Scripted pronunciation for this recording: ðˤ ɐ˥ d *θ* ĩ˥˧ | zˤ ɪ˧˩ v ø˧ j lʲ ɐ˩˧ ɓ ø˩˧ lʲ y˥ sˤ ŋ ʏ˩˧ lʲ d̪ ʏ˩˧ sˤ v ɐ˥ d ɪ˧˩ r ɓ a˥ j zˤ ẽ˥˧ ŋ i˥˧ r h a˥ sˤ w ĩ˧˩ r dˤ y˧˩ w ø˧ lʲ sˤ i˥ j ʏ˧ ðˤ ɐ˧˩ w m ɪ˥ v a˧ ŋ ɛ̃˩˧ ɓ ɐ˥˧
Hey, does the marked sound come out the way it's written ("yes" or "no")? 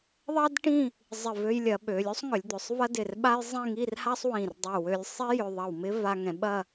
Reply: no